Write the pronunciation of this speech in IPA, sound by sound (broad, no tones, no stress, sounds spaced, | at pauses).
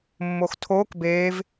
mː o x tʰ oː k b eː v